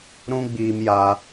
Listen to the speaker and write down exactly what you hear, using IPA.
ɾ ũ˦ ɡ͡b iː˧ m j a˦

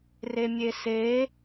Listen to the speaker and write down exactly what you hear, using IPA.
r e mʲ e s e

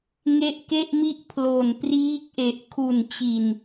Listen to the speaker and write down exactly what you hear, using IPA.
ŋ e˦˥ ʔ k e˥˩ ʔ m i˥˩ ʔ pʰ l o˨˩ n p r iː˦˥ k̚ ʔ e˨˩ ʔ kʰ u˨˩ n t͡ɕ i˨˩ n

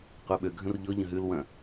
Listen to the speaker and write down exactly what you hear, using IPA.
qʷ ə˞ ɓ ø ɡʱ ə̃ r ʎ ɔ ʎ ə̃ ɦ ʉ l w ɐ̃

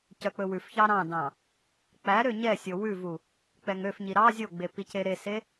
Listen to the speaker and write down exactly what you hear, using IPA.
c œ k͡p ɵ w ʉ f ç ɑ ɾ ɑ̃ d ɑ̃ | k͡p æ ɾ ø ɲ ɛ sʲ o w ʉ v u | k͡p ɛ ŋ ø f ɲ i ɾ ɑ zʲ o ɡ͡b e p i c e ɾ e s e

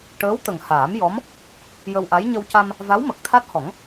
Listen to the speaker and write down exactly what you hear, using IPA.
ʈ əː˧˥ w t̪ ə˨˩ ŋ h aː˨˩˦ m j ɔ˧˥ m | j ə˧ w ʔ a˧˥ j ɲ ə˧ w c a˧ m | v a˧˥ w m ə˨˩ k̚ t̪ʰ a˦˥ t̚ h ɔ˨˩˦ ŋ

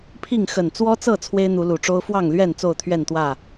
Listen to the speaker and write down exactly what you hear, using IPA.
pʰ i˥˨ ŋ x ə˨˩ n t͡s w ɔ˦ t͡s ɤ˥˨ t͡sʰ w e˦ ɪ̯ n̪ u˨˦ l u˨˩ ʈ͡ʂ o˦ ʊ̯ f w ɑ˥˨ ŋ l ɥ ɛ˥˨ n t͡s o˥˨ ʊ̯ t̪ʰ ɥ ɛ˥˨ n t̪ w ä˥˨

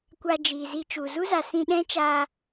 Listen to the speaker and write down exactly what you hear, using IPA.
kʷ a˧ d͡ʒ iː˨ z i˧ t͡ʃ u˨ z u˦ z a˨ s ĩ˧ ɗ ɛ̃˦ t͡ʃ aː˧

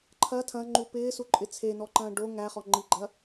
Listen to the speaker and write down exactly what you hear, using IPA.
ǃʰ ɐ tʰ ɐ̃ ŋ͡ǃ u p ɪː s u ǃʼ ɪ t͡sʰ e n ɔ ǃ ɐ̃ː ɖ o ŋ æ χ ɔ ŋ͡ǃ i ɡ͡ǃ ɐ

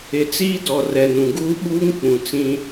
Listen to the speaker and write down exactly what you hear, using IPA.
ɪ˨ t͡s iː˦ d ɔ˨ r ɛ˨ n ũ˨ ɡ uː˦ ɓ uː˦ ŋ k͡p ũ˨ t͡s ĩ˦

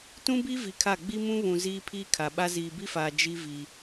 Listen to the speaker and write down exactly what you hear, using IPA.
t ũ˦ b i˦ v i˨ kʰ a˦˨ ɡ͡b i˦ m ũ˦ β ũ˨ z iː˦ pʰ iː˦ kʰ a˨ ɓ a˦ z iː˨ b i˦ f aː˨ d͡ʒ i˦ v i˦

